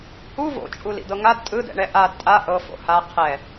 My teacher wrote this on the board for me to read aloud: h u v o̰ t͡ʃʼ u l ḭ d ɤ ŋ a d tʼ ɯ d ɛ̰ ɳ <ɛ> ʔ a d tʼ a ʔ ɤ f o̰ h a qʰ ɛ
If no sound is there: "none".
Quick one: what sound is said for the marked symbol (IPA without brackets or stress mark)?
ɛ